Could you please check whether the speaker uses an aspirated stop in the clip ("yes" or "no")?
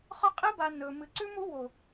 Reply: no